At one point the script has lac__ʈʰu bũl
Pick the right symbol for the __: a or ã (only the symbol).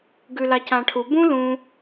ã